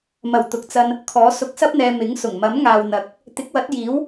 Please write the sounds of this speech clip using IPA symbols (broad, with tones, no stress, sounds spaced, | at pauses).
m ɐ˨˩ w t̪ ʊ˨ k̚ t͡s ɐ˧ n | kʰ ɔː˨˥ s ʊ˨ k̚ s ɐ˥ p̚ n̪ ɛː˨ m ɪ˨˥ ŋ s ʊ˨˩ ŋ m ɐ˨˥ m ŋ aː˨ w n̪ ɐ˨ k̚ | t̪ ɪ˨˥ k̚ w ɐ˨˥ t̚ j iː˨˥ w